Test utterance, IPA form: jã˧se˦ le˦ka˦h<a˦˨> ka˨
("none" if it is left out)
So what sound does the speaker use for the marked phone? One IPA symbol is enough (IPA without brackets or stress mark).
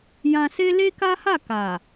a˦˨